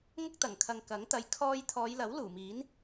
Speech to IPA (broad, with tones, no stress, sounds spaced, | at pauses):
ŋ ʊ˥ k̚ t̪ ɐ˨˩ ŋ kʰ ɐ˨ ŋ k ɐ˨˥ ŋ t̪ ɐ˨ j kʰ ɔː˧ j t̪ʰ ɔː˨˧ j l ɐ˨˥ w l uː˨˩ m iː˨˥ n